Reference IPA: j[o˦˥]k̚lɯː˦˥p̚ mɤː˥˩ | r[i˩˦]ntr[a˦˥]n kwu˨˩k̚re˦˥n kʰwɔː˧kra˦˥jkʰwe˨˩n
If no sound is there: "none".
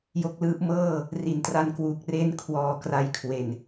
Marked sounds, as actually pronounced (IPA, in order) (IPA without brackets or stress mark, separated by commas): o˦˥, i˩˦, a˧